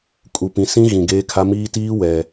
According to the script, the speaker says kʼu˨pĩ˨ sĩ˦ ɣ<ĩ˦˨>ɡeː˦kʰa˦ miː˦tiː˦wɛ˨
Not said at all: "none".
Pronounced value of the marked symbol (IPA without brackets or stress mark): ĩ˨